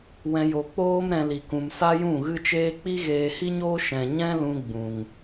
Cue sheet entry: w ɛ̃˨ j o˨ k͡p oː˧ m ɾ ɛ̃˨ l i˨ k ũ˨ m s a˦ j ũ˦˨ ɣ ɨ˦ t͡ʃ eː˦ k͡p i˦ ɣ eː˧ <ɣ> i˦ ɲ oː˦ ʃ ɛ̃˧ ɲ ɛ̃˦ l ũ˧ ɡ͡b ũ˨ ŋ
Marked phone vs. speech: incorrect: h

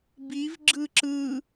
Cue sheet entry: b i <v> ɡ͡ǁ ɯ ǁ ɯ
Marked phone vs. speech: correct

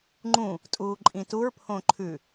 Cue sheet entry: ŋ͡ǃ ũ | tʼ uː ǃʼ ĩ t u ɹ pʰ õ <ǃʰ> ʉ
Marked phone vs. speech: correct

